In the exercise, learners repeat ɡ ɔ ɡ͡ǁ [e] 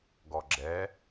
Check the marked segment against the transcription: incorrect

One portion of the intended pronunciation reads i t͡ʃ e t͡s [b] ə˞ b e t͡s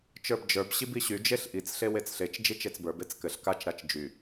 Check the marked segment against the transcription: correct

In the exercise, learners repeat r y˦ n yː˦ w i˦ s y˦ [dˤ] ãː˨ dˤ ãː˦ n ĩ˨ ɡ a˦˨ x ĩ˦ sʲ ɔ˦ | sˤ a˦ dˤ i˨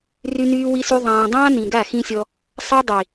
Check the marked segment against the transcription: incorrect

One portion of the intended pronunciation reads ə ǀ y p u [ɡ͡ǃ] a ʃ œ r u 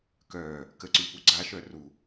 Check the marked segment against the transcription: incorrect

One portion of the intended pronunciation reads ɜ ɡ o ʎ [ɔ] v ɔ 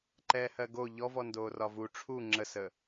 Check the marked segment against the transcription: correct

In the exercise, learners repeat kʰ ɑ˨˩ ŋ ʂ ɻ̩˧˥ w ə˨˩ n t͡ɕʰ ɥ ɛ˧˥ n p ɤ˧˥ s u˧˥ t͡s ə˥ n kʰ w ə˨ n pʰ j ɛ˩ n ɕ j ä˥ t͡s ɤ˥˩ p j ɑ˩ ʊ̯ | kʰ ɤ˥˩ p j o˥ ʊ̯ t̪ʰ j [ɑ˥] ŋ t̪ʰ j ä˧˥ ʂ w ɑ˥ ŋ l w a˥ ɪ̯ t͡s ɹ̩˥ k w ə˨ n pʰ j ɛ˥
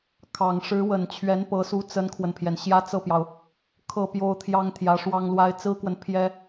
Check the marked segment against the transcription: correct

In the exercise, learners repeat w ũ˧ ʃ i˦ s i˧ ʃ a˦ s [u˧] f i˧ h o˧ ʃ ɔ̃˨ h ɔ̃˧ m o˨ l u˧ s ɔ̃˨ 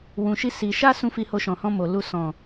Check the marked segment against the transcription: incorrect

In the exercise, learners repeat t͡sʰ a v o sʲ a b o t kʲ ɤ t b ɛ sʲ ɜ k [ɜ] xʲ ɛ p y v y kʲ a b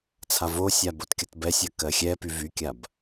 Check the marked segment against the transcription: correct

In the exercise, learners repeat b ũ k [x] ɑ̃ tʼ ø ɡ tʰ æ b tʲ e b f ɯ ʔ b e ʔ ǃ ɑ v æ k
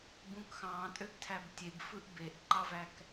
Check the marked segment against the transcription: correct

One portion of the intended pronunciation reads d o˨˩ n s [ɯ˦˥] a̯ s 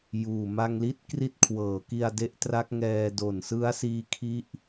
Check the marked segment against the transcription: correct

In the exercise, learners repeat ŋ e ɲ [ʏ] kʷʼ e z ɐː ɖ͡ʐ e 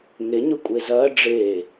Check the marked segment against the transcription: correct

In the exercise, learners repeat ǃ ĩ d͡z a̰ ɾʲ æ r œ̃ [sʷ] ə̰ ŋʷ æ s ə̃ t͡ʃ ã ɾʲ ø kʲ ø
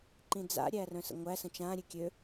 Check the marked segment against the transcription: incorrect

